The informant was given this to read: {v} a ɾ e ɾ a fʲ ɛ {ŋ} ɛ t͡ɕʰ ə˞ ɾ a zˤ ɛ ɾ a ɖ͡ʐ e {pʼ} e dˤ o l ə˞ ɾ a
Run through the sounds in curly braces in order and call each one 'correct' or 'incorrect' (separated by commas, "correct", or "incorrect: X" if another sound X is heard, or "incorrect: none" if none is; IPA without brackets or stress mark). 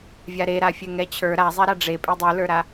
incorrect: vʲ, correct, correct